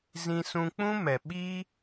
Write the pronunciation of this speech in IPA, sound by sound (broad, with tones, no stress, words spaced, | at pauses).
zĩ˧sũ˧ k͡pũ˦mɛ˨ ɓi˦